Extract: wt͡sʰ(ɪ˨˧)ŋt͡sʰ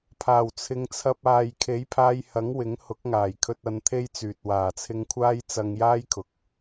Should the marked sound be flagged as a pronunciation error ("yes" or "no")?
no